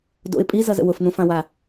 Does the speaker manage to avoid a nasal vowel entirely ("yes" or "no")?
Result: no